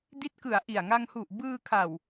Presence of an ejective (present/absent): absent